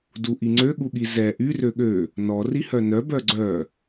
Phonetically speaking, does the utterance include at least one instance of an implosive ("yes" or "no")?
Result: yes